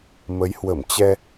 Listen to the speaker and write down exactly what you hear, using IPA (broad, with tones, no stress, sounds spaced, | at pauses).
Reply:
m ə˨˦ j h w ə˧˩ m t͡ɕ ɛ˧